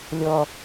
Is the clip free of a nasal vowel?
yes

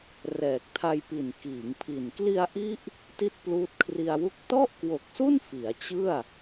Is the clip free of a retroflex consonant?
yes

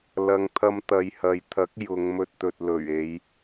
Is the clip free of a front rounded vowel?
yes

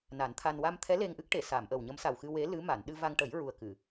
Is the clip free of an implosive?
no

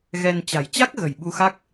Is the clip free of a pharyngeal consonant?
yes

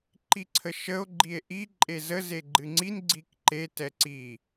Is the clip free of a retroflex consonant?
yes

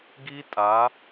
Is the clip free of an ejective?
no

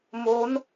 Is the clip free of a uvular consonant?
yes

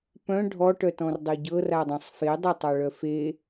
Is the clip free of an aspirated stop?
yes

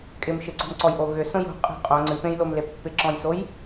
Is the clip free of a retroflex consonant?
yes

